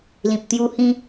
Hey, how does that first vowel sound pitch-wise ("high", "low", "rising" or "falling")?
low